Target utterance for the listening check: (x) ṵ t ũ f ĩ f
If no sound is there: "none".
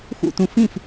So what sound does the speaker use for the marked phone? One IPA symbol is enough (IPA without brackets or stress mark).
x